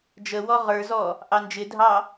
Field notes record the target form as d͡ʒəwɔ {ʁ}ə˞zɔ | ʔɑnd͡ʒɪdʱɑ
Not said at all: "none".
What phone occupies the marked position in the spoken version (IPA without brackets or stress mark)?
ʁ